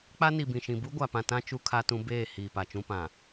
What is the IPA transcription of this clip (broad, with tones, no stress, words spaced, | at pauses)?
k͡pa˦ni˨bĩ˨ʃĩ˨ bu˦ɡʷa˨pã˨tã˦ t͡ʃu˦kʰa˦tũ˦ beː˦˨ hiː˨pa˨t͡ʃũ˦pã˨